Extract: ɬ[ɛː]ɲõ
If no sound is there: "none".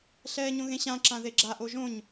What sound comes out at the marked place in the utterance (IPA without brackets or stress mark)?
ɛː